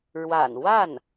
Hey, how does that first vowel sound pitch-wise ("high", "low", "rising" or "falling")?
low